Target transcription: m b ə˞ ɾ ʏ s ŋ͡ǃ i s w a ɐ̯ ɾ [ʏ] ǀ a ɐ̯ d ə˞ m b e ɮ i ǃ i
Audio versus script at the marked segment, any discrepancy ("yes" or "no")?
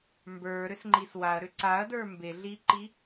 no